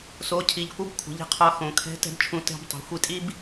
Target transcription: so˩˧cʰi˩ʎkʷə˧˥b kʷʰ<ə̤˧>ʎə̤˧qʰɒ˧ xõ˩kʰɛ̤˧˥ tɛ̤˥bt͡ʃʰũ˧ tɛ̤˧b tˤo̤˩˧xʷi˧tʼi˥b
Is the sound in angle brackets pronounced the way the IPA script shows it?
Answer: no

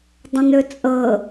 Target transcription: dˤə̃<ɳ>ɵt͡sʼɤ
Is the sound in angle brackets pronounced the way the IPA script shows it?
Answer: no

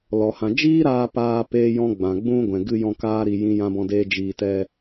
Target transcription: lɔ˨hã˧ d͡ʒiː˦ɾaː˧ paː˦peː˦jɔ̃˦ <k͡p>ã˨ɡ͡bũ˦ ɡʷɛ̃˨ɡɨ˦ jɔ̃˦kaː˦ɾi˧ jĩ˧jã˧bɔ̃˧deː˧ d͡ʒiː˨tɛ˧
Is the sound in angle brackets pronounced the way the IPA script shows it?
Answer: no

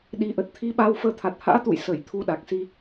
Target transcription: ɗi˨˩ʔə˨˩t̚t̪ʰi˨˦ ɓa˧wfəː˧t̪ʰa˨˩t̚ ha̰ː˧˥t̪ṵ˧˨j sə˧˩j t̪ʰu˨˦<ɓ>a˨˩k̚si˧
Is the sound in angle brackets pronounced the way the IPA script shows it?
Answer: no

